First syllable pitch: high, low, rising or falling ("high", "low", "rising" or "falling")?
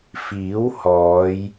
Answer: rising